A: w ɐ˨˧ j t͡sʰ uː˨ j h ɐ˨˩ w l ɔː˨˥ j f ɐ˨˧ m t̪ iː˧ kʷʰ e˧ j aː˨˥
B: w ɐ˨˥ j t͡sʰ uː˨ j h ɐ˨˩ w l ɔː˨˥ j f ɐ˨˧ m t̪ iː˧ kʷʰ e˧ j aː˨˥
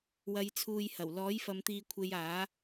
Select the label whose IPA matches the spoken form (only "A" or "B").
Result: A